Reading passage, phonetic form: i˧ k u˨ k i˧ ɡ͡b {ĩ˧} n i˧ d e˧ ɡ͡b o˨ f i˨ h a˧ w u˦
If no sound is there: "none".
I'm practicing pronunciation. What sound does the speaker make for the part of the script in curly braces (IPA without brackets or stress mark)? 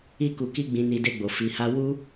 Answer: ĩ˨